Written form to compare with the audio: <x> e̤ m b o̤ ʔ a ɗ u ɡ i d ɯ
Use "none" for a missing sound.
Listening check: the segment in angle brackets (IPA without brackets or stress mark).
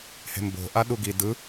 h